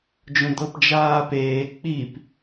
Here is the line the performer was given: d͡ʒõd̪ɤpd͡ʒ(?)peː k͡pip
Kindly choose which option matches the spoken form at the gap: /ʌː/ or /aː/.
aː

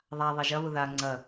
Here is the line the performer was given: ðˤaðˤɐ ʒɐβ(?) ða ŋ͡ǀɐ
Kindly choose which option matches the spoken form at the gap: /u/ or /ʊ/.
ʊ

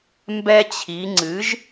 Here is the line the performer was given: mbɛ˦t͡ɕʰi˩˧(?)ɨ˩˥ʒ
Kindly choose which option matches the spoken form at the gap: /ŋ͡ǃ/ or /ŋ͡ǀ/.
ŋ͡ǀ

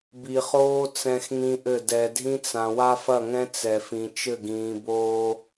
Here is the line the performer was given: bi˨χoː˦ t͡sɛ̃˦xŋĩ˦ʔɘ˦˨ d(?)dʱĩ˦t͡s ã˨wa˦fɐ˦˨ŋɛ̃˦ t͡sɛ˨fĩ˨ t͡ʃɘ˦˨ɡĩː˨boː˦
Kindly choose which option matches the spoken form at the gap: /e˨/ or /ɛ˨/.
ɛ˨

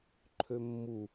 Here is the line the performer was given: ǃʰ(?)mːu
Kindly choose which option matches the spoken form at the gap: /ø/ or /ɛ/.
ø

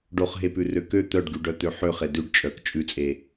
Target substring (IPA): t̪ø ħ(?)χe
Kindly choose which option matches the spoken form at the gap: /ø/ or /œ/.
ø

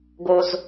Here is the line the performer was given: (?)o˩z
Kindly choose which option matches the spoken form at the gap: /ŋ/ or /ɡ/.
ɡ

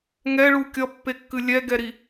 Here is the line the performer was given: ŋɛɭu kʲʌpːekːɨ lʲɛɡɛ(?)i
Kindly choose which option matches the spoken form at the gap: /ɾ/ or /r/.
ɾ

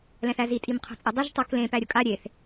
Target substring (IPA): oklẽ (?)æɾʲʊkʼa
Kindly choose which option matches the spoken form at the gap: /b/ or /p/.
p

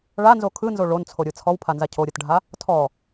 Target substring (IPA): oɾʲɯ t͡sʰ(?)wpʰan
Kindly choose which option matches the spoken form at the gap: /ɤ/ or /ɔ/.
ɔ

